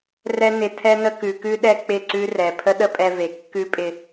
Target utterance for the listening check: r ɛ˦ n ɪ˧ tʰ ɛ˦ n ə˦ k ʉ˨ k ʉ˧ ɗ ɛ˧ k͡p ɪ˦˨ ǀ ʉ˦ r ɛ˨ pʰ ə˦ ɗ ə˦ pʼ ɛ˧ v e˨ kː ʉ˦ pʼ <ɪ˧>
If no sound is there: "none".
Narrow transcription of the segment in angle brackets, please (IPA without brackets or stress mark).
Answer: ɪ˧